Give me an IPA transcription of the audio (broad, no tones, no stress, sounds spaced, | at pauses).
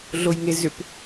ɮ o j ŋ e z ʏ p